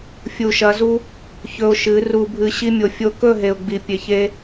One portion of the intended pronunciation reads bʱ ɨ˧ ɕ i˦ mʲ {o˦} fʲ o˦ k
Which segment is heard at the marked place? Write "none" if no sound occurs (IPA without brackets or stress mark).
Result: o˧